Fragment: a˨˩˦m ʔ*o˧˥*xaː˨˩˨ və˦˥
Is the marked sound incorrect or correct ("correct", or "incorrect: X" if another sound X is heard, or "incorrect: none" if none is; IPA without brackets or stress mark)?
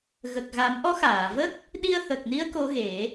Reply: incorrect: ɔ˧˥